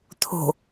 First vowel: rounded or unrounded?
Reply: rounded